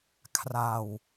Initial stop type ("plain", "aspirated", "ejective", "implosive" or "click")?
aspirated